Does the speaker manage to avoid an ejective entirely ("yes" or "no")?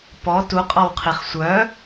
no